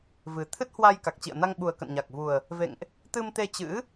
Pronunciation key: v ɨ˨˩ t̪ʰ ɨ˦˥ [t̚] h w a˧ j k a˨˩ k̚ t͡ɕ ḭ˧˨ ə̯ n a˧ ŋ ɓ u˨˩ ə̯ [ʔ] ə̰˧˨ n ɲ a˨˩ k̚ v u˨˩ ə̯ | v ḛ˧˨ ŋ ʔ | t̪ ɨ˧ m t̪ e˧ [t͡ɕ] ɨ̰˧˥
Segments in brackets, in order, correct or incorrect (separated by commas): correct, incorrect, correct